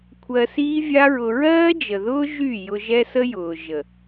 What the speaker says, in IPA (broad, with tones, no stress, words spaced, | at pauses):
kʷʰɜ˧siː˦vʲa˦ɹʊ˧ ɹɜː˦d͡ʒə˨ðʊː˦ ʒy˦˨ jʊ˧ʒɛ˦sə˦jʊː˨ ʒə˨